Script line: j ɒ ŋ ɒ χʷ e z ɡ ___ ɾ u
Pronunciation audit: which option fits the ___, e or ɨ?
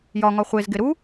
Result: e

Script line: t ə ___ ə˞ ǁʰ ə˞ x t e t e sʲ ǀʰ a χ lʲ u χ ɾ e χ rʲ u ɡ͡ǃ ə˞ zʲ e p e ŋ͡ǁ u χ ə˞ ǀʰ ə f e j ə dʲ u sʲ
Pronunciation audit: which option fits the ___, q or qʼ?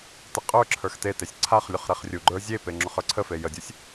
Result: qʼ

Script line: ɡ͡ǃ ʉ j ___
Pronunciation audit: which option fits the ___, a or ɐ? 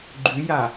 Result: a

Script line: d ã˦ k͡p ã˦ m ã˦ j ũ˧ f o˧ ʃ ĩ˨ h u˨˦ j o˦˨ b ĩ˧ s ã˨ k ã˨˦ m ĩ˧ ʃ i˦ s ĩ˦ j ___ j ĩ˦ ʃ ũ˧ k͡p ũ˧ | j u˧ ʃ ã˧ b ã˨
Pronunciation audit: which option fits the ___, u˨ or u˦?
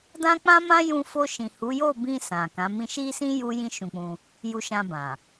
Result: u˦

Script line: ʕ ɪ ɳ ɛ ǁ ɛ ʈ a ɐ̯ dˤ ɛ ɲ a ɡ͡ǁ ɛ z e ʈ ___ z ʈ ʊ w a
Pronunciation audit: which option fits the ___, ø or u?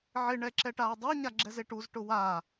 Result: u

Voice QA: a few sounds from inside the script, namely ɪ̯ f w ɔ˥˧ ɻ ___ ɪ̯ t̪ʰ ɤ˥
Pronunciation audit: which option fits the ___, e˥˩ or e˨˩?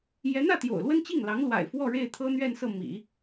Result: e˥˩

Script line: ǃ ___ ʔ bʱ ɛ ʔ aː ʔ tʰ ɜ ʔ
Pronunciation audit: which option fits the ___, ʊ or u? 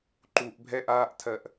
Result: u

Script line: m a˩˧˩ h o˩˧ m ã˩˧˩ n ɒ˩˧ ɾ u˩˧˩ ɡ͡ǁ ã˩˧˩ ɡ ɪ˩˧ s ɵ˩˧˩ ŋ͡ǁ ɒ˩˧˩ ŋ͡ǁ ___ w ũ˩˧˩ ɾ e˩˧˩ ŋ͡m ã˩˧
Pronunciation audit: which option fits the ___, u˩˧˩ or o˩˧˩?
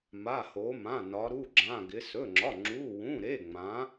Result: u˩˧˩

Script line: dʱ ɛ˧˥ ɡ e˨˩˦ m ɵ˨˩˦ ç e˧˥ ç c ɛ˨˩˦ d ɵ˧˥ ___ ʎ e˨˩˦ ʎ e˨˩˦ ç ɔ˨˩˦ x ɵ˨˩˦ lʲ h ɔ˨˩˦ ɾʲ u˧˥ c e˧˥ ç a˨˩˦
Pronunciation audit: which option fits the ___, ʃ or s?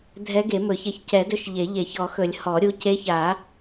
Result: ʃ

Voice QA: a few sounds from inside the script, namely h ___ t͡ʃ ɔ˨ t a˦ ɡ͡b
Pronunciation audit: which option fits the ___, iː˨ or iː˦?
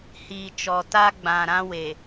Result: iː˨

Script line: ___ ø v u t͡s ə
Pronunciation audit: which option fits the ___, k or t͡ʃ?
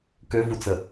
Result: k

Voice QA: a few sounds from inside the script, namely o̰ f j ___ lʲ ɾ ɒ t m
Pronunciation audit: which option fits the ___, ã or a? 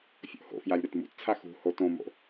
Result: a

